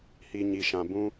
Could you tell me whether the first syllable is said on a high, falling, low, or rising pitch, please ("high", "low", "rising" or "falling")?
low